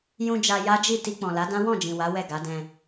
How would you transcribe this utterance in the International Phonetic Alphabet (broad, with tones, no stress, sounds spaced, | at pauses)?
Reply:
j ũ˧ d͡ʒ a˧ j a˦ d͡ʒ i˦˨ t i˧ k͡p ɔ̃˨ l a˨˦ d ã˦ w ɔ̃˦˨ d͡ʒ ĩ˨ w a˨˦ w ɛ˦˨ ɡ a˨˦ d ɛ̃˧